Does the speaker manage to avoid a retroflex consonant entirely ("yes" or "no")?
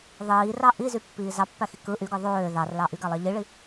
no